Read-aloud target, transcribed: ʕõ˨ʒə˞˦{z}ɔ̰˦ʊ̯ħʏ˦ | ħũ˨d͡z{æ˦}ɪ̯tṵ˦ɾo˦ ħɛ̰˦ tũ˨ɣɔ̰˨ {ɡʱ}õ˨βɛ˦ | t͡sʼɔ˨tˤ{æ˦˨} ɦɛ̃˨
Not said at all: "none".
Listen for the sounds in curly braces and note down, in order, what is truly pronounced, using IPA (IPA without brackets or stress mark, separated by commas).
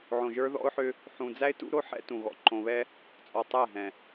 ð, æ˦, ǃ, æ˦˨